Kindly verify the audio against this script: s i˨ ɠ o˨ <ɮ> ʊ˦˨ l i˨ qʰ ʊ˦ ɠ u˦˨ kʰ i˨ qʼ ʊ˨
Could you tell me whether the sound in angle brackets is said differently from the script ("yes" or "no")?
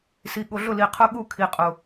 no